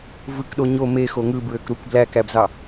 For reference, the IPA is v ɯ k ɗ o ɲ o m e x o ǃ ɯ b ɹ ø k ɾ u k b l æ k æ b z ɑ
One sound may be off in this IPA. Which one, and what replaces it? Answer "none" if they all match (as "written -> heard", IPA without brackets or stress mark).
ǃ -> ŋ